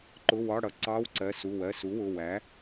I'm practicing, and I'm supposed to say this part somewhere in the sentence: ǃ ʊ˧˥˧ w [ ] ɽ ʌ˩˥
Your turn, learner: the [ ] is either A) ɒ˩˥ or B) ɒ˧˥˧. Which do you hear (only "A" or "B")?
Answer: B